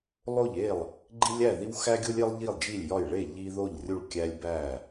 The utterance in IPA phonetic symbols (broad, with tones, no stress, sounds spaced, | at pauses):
lˠ o˥˩ ʎ e˥˩ lˠ | ɡ͡ǃ i˦ lʲ æ˥˩ ð i˦ w x æ˦ ɡʲ o˦ lʲ e˦ lˠ ʎ i˥˩ lˠ d͡ʒ i˥˩ lʲ j ɒ˥˩ j ɭ e˥˩ ʎ i˦ ð o˥˩ ʎ rʲ u˥˩ ɭ kʲ æ˦ lʲ b æ˥˩